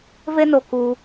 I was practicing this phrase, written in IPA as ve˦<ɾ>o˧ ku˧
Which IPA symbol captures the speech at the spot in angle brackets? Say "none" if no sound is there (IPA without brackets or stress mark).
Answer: n